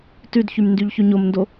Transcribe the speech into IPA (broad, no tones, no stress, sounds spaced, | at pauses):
t ʉ d ç y m n d y ʎ ç y ɲ o m n d o